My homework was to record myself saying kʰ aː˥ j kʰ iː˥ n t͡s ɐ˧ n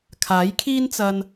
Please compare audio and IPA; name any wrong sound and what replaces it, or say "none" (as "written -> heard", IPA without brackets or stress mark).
aː˥ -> aː˨˥